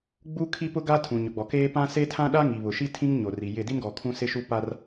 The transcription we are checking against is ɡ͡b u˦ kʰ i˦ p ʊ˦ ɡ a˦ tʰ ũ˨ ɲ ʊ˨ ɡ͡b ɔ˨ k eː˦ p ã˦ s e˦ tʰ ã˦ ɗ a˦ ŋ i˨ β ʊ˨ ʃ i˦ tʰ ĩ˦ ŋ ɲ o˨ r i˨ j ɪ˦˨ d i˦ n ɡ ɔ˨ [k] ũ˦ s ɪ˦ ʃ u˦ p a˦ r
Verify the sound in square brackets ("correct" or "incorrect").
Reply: incorrect